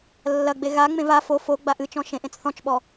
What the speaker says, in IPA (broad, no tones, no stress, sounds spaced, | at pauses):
lː ɐ ɡ͡b e ɣ a ŋ͡m ẽ v a f o f o ɡ͡b a ʔ ɨ t͡ʃ ɔ̃ ʃ ẽ ʔ ẽ t͡s θ ɔ̃ t͡ʃ ɓ ɔ